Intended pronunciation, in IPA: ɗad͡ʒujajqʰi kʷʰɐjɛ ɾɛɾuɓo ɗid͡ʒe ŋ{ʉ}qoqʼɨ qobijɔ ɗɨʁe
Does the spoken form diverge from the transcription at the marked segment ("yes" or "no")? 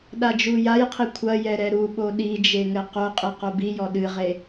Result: yes